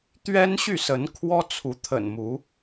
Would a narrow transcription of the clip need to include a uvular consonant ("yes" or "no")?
no